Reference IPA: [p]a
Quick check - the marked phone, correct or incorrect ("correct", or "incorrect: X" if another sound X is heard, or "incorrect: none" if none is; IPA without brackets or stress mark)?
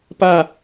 correct